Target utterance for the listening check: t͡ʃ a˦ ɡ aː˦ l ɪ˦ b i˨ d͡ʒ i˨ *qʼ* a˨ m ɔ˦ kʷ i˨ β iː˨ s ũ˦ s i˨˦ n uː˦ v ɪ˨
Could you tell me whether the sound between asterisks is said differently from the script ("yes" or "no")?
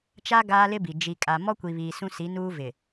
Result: yes